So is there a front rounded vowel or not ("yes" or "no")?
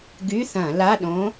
yes